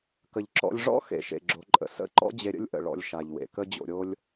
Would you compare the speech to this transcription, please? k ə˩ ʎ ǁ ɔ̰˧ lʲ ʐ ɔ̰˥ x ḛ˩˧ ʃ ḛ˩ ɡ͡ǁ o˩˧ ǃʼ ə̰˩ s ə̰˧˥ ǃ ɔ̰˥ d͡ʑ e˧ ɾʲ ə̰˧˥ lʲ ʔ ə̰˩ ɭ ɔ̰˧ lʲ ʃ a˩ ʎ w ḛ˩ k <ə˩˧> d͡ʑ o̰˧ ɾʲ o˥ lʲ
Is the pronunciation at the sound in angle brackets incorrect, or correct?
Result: incorrect